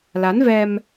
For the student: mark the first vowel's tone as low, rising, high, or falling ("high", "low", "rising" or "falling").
rising